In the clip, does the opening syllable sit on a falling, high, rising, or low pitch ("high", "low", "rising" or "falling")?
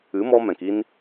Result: rising